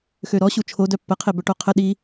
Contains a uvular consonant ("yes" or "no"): yes